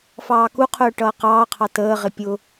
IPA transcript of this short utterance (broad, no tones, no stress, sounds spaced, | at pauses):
f ɑː k u qʰ ʊː ʈ ʌː q ɑː qʰ ɑ t əː ʁ ɪ pʲ ʊ